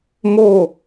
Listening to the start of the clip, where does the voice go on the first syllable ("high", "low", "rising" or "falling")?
falling